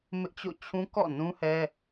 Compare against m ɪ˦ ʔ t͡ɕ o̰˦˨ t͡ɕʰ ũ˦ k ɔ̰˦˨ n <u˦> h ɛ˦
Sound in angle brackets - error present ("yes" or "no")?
yes